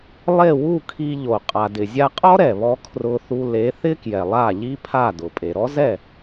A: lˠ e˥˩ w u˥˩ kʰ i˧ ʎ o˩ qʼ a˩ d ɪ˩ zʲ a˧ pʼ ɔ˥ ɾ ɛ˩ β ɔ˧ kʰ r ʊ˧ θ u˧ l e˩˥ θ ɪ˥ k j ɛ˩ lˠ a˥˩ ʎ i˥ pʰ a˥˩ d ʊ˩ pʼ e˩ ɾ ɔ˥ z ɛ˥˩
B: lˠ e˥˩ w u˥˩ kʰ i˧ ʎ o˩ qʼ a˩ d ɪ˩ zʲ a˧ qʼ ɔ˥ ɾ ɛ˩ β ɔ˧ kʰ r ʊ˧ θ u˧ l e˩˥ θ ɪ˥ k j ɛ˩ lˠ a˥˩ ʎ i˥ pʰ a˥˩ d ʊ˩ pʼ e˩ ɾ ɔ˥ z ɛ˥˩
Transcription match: B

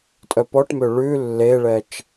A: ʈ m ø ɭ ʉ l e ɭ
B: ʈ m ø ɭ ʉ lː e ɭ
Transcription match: B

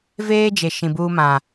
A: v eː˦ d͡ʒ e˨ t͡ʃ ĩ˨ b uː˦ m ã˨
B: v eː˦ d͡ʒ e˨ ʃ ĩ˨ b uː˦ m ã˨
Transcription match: B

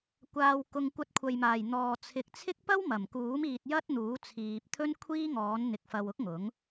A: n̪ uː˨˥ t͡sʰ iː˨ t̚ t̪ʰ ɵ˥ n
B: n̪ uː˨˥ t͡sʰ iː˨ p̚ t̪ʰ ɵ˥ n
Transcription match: B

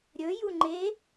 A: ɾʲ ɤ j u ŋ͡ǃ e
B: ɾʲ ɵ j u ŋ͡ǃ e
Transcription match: B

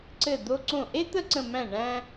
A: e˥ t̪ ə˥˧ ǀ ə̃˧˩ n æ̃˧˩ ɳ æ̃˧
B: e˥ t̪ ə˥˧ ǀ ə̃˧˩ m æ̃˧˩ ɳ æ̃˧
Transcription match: B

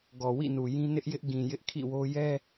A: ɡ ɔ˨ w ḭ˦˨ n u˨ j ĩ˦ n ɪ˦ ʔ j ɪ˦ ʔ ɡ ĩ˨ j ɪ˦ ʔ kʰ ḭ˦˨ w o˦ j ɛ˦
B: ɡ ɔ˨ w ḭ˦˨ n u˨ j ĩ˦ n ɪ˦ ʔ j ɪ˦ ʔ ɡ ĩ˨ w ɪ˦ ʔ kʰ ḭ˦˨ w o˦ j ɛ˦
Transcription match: A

